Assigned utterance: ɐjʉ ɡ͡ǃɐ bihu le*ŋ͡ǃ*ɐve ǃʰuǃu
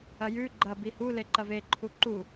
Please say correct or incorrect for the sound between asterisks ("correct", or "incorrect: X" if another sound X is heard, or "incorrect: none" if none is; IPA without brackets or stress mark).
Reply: incorrect: ǃ